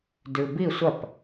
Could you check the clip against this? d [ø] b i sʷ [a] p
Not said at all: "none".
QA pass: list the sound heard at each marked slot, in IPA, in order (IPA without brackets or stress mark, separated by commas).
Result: ʉ, ɐ